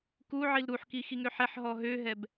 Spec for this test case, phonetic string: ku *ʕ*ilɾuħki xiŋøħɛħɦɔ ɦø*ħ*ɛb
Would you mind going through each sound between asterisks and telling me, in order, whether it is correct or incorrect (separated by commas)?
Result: correct, incorrect